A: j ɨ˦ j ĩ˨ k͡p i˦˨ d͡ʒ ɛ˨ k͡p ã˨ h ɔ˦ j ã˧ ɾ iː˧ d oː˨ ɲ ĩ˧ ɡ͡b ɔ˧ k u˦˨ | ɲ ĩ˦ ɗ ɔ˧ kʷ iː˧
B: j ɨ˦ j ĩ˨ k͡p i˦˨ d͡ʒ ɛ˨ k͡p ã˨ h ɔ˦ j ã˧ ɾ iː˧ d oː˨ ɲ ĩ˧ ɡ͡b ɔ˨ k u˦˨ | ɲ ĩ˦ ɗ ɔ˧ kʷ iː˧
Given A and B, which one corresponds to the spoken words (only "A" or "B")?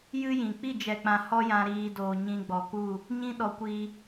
B